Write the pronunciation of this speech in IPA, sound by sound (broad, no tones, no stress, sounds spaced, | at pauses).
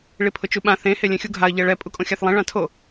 ɭ i pʰ ʊ t͡ʃ u ɓ ã θ ẽ h e lʲ ẽ xʲ u ɡʱ a ə̯ ʎ ɛ ɭ ɛ pʼ u kʼ õ xʲ a θ lˠ ẽ ɭ ã tʰ o